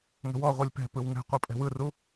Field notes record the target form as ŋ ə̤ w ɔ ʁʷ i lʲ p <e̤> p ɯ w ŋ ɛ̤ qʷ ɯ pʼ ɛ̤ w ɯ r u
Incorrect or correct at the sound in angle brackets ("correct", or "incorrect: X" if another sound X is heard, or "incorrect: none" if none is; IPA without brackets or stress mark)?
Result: incorrect: ɛ̤